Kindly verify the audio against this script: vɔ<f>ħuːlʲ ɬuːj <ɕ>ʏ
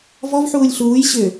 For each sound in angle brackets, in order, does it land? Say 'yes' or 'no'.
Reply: no, yes

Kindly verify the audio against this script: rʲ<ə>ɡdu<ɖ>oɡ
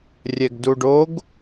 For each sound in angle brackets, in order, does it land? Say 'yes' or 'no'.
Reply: no, yes

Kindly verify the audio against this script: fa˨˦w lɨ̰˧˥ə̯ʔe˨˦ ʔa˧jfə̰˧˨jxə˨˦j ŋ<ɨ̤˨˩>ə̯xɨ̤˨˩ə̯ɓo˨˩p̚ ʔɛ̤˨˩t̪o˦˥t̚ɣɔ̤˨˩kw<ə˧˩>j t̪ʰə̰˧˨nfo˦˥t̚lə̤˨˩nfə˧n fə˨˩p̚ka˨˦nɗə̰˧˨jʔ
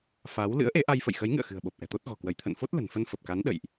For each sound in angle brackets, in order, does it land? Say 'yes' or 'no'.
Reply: no, yes

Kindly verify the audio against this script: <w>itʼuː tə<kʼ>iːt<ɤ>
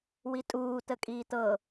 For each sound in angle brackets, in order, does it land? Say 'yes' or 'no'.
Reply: yes, yes, yes

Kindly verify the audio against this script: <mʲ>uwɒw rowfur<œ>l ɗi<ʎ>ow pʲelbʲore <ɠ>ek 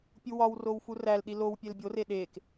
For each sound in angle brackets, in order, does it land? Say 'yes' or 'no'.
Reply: no, no, no, no

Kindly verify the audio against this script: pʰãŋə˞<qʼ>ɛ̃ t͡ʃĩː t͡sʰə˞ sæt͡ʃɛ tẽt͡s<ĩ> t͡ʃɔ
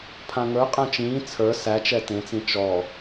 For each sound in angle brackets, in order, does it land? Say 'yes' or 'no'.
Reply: yes, yes

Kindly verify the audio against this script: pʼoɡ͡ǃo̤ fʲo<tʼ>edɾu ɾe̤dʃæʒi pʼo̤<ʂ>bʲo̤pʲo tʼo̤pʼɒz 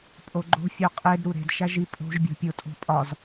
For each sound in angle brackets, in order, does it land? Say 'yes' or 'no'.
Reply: no, no

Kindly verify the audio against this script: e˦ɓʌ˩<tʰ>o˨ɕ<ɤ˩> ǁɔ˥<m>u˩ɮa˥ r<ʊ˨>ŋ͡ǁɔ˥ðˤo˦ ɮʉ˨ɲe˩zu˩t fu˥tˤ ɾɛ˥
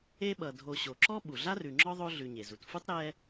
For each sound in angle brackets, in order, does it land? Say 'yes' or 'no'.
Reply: no, no, no, no

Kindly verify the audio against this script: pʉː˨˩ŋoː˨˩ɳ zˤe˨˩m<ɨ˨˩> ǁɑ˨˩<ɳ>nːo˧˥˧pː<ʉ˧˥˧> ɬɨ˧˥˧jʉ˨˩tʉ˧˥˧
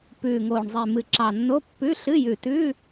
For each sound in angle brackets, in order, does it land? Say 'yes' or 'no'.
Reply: yes, no, yes

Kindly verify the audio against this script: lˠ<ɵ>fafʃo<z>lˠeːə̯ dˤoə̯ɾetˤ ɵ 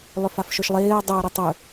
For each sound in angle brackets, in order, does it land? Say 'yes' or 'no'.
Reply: no, no

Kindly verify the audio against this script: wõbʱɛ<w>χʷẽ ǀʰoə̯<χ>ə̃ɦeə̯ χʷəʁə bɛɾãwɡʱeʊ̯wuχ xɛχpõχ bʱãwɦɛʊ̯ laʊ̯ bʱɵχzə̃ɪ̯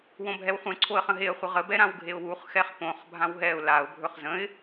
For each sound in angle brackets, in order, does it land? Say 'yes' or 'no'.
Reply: yes, yes

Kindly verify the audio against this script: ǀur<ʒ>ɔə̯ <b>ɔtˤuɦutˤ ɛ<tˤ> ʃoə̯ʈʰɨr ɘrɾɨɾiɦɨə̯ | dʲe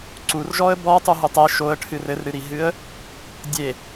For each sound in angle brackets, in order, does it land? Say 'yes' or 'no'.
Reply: yes, yes, no

